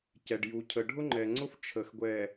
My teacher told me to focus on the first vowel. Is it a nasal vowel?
no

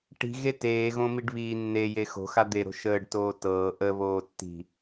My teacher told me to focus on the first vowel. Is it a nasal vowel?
no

